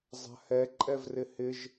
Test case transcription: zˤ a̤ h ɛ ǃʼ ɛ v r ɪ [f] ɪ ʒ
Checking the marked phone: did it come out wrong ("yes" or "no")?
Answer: yes